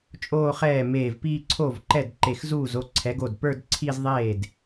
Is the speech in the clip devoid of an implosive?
yes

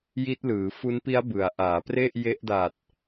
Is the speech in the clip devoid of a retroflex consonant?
yes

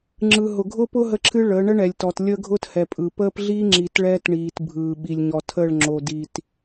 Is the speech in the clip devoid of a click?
no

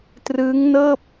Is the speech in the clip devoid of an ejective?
yes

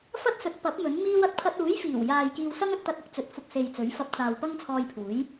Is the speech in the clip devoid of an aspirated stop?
no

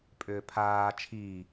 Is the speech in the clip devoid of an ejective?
no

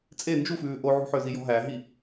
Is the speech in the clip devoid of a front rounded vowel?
no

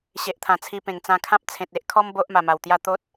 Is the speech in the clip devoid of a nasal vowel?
no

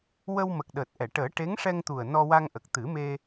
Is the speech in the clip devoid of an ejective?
yes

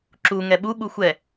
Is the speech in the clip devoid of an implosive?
no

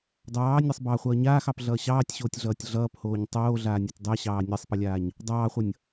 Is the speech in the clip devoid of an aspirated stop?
yes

